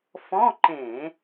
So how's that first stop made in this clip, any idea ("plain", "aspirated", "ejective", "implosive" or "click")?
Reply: click